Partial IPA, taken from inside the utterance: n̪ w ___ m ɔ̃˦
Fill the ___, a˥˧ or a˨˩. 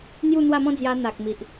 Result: a˥˧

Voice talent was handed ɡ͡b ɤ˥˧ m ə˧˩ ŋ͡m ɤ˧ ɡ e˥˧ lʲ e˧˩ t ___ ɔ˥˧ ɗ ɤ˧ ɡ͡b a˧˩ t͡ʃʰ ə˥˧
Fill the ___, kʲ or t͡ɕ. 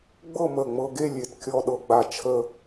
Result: kʲ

